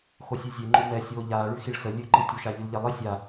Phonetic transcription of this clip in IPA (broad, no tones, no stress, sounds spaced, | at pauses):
x o sʲ ʉ zʲ ɛ ŋ͡ǃ o m ɛ sʲ oː ʎ aː ɭ ʉ x i ɭ x ə lʲ ʉ ǃ i tʲ o ʃ a ʎ ʉ l ʎ ɛ lˠ i sʲ a